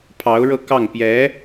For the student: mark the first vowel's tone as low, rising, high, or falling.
rising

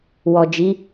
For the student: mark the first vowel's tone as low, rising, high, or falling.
low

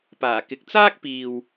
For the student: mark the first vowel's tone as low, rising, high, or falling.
low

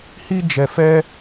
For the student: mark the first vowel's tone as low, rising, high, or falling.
high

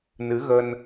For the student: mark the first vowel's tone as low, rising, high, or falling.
rising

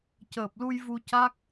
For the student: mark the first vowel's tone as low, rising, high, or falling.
low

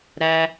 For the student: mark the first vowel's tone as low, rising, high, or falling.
high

